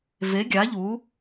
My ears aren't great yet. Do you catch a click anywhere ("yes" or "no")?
no